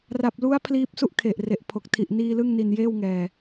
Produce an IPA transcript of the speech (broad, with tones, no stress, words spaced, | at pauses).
ra˨˩p̚lu˦˥a̯ pʰliː˦˥p̚su˥˩ʔkʰe˨˩ʔre˨˩ʔ pʰo˨˩k̚tʰi˨˩ʔ niː˧ lɯ˥˩ŋni˧njeː˥˩wŋɛː˧